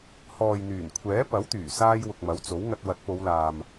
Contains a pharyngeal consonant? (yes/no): no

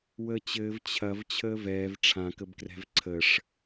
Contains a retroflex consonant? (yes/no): yes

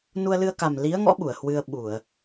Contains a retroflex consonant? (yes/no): no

